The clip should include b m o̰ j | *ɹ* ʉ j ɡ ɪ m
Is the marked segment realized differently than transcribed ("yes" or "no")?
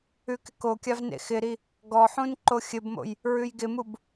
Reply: no